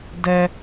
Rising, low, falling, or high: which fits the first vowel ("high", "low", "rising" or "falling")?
high